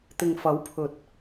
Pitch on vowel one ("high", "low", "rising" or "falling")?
low